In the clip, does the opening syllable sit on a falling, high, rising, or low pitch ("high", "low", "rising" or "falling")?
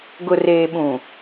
low